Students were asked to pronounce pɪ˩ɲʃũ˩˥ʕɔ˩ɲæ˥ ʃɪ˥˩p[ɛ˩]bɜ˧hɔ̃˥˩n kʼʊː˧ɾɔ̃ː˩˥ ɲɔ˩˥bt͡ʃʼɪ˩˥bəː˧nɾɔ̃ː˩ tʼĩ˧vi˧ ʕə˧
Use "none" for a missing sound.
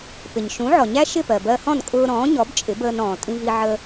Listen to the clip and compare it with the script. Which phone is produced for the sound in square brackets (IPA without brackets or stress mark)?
ɜ˩